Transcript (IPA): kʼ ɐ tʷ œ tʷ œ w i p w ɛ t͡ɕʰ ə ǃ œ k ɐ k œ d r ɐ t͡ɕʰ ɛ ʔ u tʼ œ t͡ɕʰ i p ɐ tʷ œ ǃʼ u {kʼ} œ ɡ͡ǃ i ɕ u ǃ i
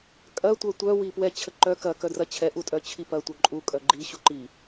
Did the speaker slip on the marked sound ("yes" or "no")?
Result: no